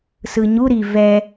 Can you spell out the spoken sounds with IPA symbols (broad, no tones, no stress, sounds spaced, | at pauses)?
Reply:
s ɯ ɲ u ɾ i v ɛ